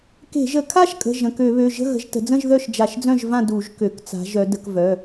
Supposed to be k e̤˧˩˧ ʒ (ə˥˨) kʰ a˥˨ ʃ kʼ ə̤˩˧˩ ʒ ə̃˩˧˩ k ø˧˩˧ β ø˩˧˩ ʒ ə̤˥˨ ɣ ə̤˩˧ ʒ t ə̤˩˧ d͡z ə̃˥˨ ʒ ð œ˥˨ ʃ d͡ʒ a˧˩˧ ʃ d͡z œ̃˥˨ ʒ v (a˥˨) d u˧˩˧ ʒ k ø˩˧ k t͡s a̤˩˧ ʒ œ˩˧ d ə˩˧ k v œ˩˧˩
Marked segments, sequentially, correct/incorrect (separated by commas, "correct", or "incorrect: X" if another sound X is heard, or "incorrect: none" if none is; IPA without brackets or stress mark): incorrect: ə˧˩˧, incorrect: ã˥˨